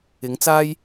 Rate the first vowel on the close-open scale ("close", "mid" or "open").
close